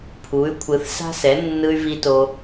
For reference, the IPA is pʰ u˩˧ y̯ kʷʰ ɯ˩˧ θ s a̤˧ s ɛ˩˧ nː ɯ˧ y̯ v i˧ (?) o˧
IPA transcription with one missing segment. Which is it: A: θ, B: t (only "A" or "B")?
B